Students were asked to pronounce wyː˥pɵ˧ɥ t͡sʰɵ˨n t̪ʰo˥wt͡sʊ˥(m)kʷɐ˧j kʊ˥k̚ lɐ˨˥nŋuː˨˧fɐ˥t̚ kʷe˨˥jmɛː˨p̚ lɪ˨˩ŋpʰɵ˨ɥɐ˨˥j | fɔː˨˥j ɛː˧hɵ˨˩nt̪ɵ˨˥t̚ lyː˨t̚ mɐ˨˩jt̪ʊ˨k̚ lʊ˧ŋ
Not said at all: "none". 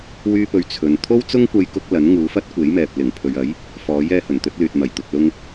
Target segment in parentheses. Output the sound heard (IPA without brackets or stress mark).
ŋ